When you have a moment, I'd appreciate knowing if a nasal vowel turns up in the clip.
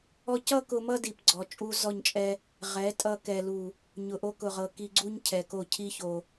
no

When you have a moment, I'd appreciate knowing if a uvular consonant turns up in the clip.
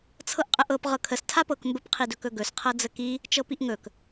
yes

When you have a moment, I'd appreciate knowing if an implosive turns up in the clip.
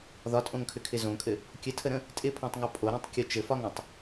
no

